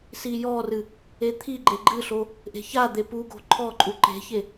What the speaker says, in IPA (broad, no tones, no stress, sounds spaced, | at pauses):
s i j ɔ r ɨ | e t̪ʰ i ɡ͡ǃ e ɡ͡ǃ ɨ ɬ o | ʔ e̤ ç a d̪ e p u ɡ o̤ ǃʰ ɔ ǃʼ u ǃ e̤ ç e